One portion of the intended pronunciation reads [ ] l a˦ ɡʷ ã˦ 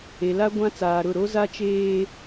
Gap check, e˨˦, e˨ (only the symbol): e˨